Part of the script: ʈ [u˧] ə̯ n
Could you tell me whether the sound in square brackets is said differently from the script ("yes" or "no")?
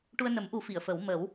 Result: no